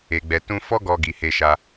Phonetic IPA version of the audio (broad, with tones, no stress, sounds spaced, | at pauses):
e˨ ɡ͡b ɛ˨ t ũ˧ f ɔ˦ ɡ ɔ˧ ɡ i˨ h e˧ ʃ a˧